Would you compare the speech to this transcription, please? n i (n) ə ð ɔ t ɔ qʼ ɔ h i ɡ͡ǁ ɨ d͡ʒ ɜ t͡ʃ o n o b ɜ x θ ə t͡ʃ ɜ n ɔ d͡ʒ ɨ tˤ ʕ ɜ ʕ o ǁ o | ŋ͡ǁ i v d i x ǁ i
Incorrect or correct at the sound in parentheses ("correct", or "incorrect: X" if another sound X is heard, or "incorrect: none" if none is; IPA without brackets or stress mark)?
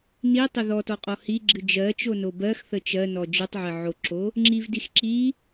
incorrect: tˤ